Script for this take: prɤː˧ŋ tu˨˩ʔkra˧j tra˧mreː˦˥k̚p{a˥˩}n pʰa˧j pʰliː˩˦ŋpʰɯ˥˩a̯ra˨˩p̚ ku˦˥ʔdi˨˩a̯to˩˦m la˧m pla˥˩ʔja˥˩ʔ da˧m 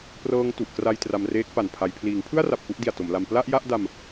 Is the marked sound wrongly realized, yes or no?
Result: yes